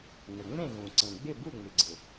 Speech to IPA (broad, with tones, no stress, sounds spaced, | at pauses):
n ə˩ ŋ͡m ẽ˥˨ ɣ ũ˩ ǀ ẽ˩ ɡ͡b ɪ˥˨ b u˥˨ ŋ͡m ɪ˩ ɡ͡ǀ ɪ˩